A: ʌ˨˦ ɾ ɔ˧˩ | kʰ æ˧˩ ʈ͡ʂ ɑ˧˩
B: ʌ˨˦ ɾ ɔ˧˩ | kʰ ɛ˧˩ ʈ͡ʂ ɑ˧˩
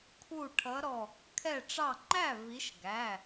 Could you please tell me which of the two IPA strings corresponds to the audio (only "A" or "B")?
B